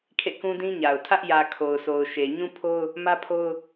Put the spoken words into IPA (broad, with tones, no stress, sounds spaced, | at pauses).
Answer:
kʰ ḛ˦˨ k ũ˦ d ĩ˦ ɲ a˨ ʊ̯ tʰ ä˦ ʔ j ä˨ kʰ o˨ ʊ̯ s o˨ ʊ̯ ʃ e˨ ɲ ũ˦ pʰ o˦ ʊ̯ | m ä˦ pʰ o˦ ʊ̯